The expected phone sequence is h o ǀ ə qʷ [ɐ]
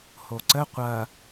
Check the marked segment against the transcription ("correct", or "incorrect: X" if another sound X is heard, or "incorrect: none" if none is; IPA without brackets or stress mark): correct